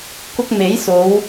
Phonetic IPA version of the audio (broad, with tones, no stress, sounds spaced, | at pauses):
k ʊ˥ k̚ m e˨˥ j s o˨˧ w